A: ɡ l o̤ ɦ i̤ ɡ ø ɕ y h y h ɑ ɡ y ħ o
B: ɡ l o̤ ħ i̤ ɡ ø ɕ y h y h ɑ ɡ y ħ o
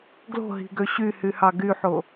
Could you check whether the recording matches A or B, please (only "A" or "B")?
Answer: A